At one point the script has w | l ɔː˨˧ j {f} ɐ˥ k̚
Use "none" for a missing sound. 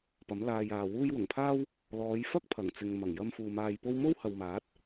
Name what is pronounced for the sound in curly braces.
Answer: f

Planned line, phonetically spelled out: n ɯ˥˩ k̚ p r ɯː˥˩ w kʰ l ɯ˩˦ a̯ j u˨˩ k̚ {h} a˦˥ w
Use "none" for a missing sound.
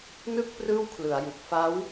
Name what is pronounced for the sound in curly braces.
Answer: f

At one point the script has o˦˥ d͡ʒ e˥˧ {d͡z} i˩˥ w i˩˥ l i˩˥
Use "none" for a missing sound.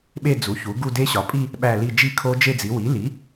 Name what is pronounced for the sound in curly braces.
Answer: d͡z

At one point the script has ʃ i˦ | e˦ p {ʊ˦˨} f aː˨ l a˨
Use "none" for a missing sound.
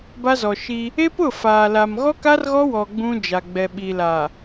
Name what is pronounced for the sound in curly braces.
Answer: ʊ˦˨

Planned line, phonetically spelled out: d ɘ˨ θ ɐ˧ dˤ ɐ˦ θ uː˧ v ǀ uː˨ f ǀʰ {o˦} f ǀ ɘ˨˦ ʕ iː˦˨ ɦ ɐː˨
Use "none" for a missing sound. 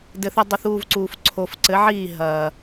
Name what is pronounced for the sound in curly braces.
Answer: o˨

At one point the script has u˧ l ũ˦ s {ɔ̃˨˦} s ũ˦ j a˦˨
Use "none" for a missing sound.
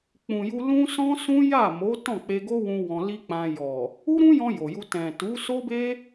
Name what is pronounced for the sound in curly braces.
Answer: ɔ̃˦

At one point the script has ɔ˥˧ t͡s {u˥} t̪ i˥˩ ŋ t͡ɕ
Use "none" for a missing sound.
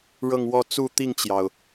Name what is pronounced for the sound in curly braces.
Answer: u˥˧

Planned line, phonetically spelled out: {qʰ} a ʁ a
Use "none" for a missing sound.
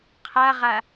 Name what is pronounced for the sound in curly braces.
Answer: qʰ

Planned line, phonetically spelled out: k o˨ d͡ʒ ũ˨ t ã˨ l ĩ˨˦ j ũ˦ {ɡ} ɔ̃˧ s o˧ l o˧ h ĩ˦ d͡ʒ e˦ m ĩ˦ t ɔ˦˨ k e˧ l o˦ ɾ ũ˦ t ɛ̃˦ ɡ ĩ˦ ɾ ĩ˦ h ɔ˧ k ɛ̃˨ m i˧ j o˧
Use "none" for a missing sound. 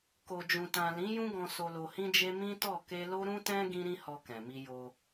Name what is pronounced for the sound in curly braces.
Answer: ɡ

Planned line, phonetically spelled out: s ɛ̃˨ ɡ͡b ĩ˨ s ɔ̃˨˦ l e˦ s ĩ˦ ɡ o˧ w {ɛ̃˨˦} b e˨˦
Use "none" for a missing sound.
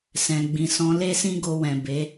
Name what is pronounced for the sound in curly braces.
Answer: ɛ̃˨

